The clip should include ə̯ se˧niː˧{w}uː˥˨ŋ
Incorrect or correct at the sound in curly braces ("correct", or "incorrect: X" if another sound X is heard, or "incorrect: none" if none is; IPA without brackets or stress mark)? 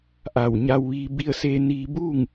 incorrect: b